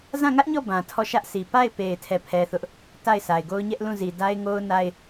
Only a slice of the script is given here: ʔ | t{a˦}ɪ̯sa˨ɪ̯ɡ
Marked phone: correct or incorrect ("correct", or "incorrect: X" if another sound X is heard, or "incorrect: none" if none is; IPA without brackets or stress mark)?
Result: incorrect: a˦˨